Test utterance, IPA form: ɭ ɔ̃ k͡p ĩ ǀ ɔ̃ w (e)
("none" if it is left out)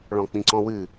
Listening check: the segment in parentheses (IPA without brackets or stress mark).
ɨ